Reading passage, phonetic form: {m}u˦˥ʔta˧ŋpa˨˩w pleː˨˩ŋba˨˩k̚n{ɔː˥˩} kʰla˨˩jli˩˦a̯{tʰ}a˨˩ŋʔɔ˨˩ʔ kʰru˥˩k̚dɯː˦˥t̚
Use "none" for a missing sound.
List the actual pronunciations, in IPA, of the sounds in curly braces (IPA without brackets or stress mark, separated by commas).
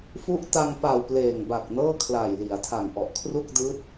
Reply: f, ɤː˥˩, tʰ